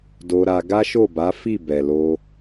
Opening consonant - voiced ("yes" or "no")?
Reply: yes